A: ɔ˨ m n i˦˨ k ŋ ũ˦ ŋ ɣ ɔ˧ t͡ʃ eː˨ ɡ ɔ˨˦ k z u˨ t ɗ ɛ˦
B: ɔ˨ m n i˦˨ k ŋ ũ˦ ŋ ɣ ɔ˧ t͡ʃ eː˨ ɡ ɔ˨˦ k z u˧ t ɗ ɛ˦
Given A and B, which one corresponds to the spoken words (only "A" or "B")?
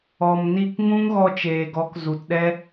A